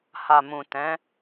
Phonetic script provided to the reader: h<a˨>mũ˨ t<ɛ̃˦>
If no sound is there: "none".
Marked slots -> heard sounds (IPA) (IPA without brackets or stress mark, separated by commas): a˨, ɛ̃˨˦